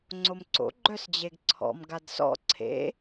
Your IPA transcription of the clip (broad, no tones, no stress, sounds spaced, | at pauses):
ŋ͡ǀ o m ǀ o̰ ɡ͡ǃ œ s d͡ʑ e ɡ ǀʰ ɔ̰ m ɡ a d s ɔ̰ ǀʰ ḛ